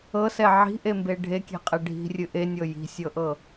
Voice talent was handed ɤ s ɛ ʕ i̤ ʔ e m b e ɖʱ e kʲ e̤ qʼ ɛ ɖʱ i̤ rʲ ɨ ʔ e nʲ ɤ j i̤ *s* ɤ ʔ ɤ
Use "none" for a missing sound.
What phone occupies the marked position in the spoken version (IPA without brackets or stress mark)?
sʲ